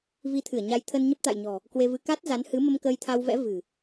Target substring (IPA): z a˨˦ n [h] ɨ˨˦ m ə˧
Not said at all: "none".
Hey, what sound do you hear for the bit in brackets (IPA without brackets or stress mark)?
h